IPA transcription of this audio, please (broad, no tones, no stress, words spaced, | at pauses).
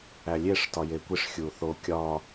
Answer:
ælʲeʂ tɒjekʷiʂ xʲuθo kʲɒ